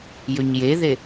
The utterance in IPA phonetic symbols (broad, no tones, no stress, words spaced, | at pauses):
jɵɲjeðe